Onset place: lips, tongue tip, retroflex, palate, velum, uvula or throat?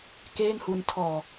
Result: velum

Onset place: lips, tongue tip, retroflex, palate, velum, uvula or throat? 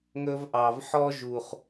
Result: velum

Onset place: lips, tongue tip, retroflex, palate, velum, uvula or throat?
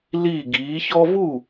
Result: tongue tip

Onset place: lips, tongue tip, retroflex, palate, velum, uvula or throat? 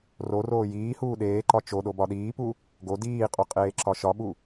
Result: tongue tip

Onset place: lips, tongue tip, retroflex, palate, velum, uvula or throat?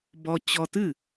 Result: lips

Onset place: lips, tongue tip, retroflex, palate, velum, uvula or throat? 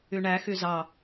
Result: retroflex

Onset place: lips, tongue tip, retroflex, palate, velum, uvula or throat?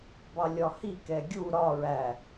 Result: lips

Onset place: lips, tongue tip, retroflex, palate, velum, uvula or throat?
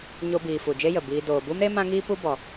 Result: palate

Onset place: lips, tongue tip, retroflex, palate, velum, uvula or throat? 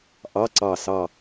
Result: throat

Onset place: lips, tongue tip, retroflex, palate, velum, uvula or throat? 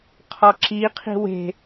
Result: uvula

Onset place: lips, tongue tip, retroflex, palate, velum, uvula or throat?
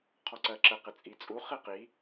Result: uvula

